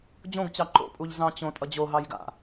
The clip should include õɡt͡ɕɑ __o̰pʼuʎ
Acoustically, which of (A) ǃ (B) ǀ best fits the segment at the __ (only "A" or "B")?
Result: A